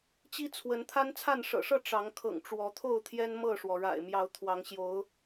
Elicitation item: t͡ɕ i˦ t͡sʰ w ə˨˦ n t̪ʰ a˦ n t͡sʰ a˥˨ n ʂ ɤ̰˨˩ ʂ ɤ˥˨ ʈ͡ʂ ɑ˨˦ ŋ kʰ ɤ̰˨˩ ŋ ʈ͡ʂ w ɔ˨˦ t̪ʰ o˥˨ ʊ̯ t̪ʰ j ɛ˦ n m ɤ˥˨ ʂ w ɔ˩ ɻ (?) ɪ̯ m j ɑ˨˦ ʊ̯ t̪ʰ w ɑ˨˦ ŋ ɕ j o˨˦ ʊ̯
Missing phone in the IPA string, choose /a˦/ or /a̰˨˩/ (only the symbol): a̰˨˩